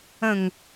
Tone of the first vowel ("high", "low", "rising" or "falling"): falling